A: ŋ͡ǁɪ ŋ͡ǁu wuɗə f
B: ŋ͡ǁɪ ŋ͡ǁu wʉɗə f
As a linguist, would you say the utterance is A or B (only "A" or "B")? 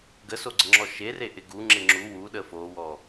A